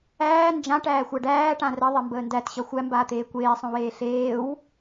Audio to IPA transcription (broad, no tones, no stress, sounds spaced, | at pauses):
æː n d͡ʒ ã ʈ æː xʷ a ɖ æː ʈ ã r ə ðˤ e m b əː n d æ t ɕ ʌ xʷ æ m b aː t̪ eː kʷ eː sˤ õ w eː ɬ eː w